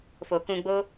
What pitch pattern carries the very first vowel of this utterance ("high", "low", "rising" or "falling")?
low